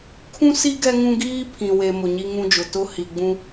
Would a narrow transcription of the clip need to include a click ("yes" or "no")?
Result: no